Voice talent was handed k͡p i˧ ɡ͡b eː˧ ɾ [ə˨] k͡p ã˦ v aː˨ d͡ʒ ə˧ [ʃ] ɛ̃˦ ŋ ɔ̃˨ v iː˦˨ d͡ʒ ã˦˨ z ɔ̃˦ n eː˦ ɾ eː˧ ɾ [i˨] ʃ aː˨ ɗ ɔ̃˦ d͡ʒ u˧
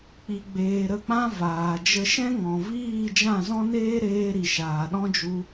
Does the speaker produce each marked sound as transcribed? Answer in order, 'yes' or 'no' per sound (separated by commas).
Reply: no, yes, yes